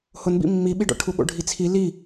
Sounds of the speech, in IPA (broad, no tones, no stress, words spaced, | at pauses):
hʊnbḭ mːiɓiɖɔ̰ ʈʰuɠo̰ɖʱit͡sʰi li